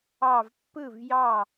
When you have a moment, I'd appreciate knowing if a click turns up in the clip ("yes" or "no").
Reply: no